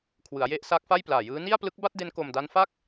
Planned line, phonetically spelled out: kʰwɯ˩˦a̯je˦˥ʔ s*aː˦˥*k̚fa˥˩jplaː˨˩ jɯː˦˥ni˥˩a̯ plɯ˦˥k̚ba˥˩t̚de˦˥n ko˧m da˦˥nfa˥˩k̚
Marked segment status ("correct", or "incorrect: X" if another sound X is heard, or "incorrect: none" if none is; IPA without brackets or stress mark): correct